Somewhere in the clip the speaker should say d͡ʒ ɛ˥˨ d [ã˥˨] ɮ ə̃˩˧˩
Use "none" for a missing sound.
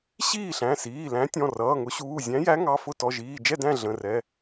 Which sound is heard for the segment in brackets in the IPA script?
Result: æ̃˥˨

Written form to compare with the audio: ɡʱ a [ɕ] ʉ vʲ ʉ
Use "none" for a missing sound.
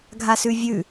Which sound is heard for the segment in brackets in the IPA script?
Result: s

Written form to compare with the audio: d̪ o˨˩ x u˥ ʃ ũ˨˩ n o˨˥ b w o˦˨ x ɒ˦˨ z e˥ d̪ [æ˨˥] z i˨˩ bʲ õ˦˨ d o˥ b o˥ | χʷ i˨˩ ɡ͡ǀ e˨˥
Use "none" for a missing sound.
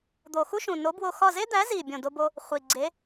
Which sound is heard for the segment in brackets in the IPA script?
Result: æ˨˥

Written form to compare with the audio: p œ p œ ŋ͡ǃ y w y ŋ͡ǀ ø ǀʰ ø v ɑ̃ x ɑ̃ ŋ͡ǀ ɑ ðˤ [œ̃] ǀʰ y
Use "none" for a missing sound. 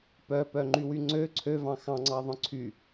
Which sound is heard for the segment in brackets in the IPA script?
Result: œ̃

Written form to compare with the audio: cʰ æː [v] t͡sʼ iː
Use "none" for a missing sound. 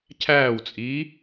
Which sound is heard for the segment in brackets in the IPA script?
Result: w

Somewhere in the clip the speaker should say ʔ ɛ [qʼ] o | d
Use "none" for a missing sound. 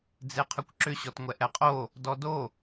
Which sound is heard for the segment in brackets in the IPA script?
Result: qʼ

